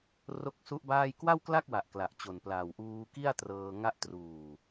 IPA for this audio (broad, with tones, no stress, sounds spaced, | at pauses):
r o˦˥ k̚ s u˦˥ ʔ b aː˥˩ j k w a˥˩ w k l a˥˩ k̚ w a˨˩ ʔ k l a˨˩ ʔ t͡ɕ o˨˩ n p l aː˨˩ w ʔ uː˧ k i˥˩ a̯ t r ɤː˧ ŋ a˥˩ ʔ t r uː˨˩